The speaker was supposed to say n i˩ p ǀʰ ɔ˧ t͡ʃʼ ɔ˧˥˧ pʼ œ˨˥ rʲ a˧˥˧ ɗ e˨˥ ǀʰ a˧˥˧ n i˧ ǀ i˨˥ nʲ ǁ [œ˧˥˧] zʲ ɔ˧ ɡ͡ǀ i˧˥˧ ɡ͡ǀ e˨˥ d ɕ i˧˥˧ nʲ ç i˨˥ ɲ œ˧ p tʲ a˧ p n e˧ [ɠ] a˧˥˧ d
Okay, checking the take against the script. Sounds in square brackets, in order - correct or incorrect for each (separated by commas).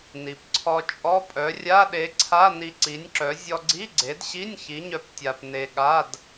incorrect, correct